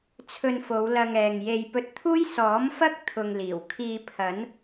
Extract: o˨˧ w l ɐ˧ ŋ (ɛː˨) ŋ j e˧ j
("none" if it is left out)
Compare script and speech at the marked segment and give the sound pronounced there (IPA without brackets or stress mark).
ɛː˨